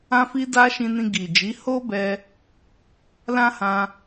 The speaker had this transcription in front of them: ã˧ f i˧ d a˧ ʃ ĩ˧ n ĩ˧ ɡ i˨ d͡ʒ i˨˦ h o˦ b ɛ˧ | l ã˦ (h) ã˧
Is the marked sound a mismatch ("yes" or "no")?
no